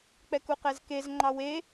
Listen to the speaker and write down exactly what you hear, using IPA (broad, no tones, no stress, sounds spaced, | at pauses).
k͡p ɛ k u q ɛ z k e z ŋ͡ǃ ɑ w e